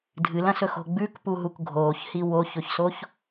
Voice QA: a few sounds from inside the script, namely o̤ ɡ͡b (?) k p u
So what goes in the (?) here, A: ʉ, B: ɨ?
A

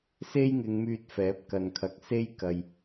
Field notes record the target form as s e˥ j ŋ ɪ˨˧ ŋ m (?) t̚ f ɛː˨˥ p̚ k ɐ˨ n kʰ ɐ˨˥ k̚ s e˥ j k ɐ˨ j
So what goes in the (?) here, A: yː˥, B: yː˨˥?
A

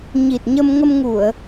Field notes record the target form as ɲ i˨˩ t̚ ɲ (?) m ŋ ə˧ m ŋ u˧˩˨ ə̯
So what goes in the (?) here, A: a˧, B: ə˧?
B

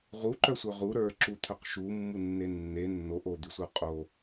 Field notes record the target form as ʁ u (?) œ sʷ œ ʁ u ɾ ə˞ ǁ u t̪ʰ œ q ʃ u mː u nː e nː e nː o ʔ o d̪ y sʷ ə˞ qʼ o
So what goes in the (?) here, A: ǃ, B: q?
A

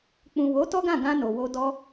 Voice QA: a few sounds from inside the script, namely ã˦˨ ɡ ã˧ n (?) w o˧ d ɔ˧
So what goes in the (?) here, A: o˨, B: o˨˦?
A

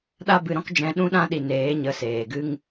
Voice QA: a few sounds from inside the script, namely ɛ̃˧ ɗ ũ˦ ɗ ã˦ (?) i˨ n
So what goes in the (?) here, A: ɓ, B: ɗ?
B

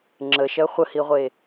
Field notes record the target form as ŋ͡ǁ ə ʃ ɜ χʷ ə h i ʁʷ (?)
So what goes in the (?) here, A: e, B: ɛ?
A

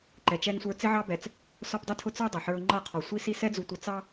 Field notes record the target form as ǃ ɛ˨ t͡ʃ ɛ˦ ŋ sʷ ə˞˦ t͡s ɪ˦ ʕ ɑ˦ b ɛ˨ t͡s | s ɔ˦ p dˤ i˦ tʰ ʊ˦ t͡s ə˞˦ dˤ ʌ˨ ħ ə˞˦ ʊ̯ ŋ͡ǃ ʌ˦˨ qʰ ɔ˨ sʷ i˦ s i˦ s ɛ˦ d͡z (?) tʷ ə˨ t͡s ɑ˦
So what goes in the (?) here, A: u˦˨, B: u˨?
B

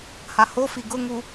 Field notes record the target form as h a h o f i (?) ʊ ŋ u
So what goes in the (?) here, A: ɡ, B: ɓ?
A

